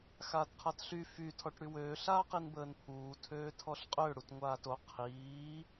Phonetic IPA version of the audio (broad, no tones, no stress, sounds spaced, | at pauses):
x aː t qʰ a t ɬ y f y tʰ ɔ ʈ ɽ y w øː ɬ aː q i n b əː n pʰ uː tʰ øː tʰ ɔ ɬ qʼ ø ɽ u t ŋʷ aː t o qʰ iː